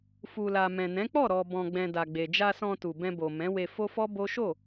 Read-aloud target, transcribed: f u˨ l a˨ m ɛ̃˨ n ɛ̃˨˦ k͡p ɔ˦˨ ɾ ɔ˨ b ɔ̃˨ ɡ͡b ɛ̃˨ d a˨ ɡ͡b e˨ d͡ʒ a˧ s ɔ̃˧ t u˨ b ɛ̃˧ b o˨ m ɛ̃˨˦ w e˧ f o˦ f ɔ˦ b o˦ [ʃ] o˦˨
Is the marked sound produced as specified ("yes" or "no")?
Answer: yes